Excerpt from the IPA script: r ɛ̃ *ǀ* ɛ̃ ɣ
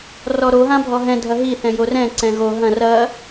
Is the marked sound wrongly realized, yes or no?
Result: no